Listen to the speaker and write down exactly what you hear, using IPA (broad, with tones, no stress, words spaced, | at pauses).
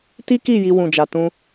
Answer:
ti˦ki˦˨ ji˧wũ˨d͡ʒa˨tũ˧